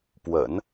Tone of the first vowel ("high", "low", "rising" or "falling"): low